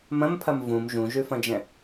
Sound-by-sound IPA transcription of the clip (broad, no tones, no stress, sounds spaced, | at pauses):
m ɐ̃ m pʰ ɐ m v ũ m ʒ ũ ʒ ʉ f ɐ̃ d͡ʒ ɛ̃